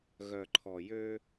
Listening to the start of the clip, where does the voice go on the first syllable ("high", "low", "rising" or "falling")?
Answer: low